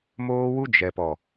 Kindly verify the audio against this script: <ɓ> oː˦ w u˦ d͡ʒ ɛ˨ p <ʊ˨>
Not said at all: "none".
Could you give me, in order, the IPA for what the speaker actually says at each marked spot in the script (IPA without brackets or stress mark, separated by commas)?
m, ɔ˨